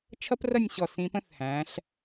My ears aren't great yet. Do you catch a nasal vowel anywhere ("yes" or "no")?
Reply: yes